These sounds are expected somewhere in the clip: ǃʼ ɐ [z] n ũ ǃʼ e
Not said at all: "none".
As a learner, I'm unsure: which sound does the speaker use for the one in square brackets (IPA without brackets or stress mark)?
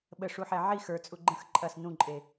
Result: s